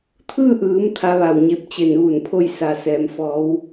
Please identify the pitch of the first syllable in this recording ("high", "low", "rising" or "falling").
falling